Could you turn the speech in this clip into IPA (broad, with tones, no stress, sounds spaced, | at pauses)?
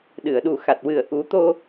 ɗ ɨ˨˩˨ ə̯ ɗ u˨˩ x a˨˩ t̚ w ɨ˨˩ ə̯ ʔ u˨˩˦ t̪ o˧